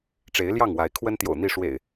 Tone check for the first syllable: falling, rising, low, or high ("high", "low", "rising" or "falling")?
rising